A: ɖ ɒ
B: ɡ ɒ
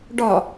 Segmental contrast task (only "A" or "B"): A